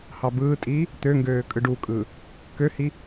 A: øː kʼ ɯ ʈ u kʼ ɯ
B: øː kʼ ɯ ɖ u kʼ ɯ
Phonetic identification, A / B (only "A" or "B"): B